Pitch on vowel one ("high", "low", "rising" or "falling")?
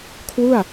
falling